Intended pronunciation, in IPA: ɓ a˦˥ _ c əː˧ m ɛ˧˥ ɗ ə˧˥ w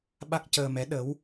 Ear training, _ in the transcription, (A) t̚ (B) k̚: B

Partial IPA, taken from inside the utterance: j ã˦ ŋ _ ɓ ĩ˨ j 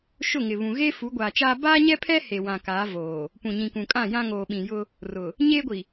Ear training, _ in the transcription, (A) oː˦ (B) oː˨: B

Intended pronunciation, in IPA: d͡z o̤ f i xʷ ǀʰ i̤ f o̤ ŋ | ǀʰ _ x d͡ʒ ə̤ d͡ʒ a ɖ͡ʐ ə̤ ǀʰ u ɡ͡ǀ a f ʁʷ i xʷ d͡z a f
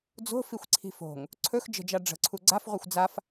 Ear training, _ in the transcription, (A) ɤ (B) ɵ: B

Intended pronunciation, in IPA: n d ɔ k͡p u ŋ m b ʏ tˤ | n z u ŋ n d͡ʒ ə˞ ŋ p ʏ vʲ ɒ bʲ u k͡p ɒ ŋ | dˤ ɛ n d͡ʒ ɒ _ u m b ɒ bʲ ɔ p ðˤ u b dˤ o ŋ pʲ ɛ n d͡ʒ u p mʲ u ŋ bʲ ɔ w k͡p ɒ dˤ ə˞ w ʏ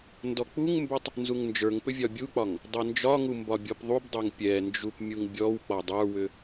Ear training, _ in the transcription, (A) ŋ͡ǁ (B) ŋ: B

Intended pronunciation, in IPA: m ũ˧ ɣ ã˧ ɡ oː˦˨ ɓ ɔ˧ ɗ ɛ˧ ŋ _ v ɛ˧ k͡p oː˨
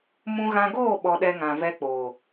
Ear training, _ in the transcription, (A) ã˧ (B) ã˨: B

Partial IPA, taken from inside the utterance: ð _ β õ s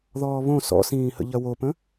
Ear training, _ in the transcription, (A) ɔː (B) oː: A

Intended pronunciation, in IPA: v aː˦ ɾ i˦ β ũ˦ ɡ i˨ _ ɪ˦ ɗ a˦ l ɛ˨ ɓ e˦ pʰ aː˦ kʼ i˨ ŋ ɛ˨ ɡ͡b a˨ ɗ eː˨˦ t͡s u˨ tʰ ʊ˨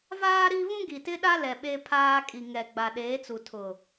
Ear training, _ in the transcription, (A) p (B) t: B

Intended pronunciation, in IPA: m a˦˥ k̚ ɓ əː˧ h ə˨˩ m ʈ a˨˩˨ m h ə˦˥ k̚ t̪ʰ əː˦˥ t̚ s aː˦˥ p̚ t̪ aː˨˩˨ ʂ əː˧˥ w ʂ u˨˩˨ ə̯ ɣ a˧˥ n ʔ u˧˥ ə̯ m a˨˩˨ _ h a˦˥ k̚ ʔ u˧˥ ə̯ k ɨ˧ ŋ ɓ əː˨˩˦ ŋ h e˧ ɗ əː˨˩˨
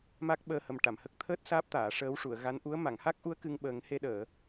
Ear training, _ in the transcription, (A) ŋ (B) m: A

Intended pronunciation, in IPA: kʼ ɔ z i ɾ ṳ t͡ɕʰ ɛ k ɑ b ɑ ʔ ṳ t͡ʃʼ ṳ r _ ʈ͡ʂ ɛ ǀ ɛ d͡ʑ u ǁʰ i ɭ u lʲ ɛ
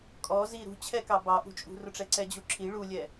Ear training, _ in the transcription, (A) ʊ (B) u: A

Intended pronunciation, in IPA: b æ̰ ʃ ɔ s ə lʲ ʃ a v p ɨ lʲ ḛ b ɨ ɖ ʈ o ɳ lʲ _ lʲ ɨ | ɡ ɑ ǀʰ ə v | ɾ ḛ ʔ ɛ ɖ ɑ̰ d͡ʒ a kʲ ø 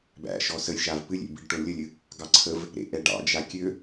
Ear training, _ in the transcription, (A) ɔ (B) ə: B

